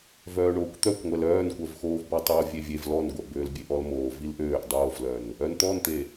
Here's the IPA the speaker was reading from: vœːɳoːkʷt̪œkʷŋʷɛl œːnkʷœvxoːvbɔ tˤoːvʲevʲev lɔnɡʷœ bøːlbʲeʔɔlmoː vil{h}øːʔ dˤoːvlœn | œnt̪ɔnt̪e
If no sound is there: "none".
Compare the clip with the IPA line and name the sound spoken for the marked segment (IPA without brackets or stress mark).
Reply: ʔ